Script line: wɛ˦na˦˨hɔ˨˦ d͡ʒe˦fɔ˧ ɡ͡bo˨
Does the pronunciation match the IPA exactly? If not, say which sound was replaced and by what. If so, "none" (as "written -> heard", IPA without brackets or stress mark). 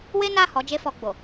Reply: ɛ˦ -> e˦